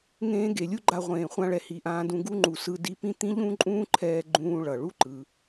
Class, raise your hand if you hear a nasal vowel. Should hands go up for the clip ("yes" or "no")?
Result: yes